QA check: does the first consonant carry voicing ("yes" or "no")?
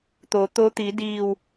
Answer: no